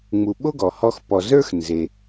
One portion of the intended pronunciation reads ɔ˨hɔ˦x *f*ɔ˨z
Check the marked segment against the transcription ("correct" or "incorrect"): incorrect